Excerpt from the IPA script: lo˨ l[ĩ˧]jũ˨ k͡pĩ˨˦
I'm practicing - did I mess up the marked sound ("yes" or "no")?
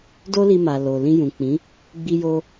no